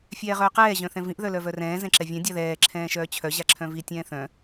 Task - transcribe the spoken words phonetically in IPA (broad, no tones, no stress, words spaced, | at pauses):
fʲɛːʁœːqɛː ʑœ̃θɛ̃vĩʔ ðœlœvœrɛ̃ː zɛ̃ǁɛvʲɛ̃ dʲaðɛː ǁʰɛ̃ːʃœːt͡ɕʰœ ʑaǁʰœ̃vi tʲɛ̃ːθœ̃